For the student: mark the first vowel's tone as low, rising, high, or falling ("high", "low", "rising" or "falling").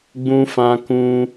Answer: high